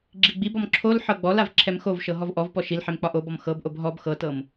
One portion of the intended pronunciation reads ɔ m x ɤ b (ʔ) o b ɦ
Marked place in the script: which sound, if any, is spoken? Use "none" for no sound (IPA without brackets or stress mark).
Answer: ʔ